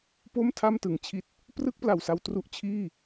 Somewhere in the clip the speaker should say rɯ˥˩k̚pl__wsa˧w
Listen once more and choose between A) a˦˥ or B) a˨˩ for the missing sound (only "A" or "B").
B